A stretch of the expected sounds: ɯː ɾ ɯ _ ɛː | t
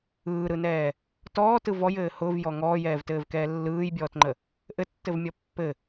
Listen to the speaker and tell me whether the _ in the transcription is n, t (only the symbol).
n